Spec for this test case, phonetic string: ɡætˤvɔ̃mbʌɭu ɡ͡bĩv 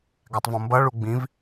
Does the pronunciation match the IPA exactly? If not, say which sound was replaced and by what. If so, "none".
none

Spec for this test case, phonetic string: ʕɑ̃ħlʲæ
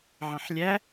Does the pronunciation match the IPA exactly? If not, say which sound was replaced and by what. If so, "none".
none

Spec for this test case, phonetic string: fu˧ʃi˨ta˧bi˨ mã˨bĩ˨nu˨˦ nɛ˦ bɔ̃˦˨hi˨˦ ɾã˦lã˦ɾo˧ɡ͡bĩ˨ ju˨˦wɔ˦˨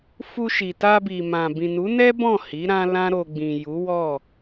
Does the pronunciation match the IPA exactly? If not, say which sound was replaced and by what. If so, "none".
none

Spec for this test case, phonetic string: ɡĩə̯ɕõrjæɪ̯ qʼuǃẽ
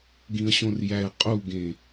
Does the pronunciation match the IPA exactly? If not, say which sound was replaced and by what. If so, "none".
ǃ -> ɡ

